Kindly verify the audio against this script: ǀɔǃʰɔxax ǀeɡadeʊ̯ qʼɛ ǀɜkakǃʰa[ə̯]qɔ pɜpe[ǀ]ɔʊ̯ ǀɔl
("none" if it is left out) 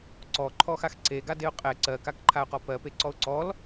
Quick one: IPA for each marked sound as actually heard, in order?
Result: ʊ̯, ǀ

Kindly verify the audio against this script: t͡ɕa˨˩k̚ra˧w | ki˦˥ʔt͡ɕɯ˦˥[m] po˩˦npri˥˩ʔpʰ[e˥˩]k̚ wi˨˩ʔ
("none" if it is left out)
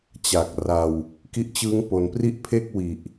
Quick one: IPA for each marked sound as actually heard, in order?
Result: ŋ, e˥˩

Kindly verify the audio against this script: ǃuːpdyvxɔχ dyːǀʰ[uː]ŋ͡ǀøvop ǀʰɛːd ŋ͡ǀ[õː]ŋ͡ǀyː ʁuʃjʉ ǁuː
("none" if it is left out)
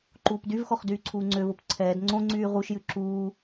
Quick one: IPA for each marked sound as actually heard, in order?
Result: uː, õ

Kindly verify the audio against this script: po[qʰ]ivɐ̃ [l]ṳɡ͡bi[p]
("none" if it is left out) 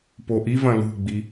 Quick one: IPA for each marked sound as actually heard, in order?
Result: ʔ, l, none

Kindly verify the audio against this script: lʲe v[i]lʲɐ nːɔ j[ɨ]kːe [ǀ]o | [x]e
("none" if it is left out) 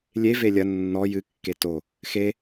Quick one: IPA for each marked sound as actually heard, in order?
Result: e, ɨ, t, x

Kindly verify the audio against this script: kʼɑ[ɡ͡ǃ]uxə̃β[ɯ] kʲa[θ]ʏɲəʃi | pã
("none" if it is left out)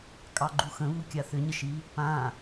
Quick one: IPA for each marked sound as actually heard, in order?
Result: ɡ͡ǃ, u, θ

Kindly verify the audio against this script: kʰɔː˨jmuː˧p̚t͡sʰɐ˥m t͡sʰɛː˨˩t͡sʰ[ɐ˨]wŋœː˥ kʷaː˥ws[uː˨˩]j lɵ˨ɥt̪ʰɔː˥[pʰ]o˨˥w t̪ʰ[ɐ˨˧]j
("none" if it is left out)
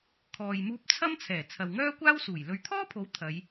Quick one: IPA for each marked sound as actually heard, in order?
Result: ɐ˨, uː˨˩, pʰ, ɐ˨˧

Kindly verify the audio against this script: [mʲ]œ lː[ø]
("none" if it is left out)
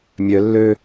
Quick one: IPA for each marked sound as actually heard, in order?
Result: mʲ, ø

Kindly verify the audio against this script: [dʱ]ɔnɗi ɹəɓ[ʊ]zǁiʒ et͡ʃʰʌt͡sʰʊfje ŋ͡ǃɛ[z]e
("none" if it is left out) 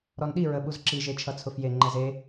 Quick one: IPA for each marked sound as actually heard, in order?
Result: ɾ, u, z

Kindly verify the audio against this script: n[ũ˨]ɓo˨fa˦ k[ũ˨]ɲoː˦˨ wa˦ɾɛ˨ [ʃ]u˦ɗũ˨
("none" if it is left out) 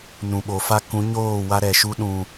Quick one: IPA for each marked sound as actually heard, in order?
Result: ũ˨, ũ˨˦, ʃ

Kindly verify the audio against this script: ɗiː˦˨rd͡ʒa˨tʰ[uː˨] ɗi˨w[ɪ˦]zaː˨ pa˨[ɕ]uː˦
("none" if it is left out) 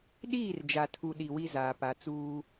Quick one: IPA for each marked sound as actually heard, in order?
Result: u˨, i˦, t͡s

